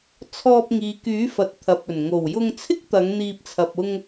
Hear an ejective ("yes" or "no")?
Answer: no